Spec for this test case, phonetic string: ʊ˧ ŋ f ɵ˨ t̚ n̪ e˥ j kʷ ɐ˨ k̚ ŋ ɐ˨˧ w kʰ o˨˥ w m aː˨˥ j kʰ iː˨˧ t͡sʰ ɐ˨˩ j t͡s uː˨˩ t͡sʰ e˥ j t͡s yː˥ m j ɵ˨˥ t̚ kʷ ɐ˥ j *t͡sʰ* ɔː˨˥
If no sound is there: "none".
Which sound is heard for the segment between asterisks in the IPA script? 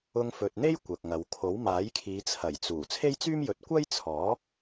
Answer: t͡sʰ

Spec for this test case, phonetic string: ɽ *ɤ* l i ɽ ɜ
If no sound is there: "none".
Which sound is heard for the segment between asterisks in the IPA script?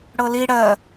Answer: ɤ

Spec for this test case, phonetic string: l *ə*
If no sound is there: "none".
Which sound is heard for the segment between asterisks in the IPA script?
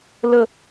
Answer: ə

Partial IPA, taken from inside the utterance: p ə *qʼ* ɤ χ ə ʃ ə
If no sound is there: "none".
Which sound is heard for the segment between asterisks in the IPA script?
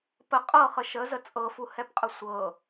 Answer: qʼ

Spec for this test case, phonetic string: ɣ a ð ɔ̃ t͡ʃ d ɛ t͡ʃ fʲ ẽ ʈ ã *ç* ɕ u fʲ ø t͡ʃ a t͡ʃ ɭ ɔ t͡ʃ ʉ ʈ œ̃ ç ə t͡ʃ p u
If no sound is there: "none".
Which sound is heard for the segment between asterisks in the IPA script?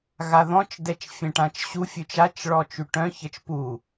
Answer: t͡ʃ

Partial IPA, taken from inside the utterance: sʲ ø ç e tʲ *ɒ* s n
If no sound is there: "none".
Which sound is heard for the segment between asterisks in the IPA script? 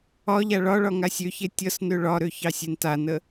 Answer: ʌ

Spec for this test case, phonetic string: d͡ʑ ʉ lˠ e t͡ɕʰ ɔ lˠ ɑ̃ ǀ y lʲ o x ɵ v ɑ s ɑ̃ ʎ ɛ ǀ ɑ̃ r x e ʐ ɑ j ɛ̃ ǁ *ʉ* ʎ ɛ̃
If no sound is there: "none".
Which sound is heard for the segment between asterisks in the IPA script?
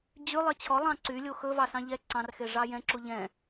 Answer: u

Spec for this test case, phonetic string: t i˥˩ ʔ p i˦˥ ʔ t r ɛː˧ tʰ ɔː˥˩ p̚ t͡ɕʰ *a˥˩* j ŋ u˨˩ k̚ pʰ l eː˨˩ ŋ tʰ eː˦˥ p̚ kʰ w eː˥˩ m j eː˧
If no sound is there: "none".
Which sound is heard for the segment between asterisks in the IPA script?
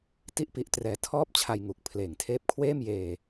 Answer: a˧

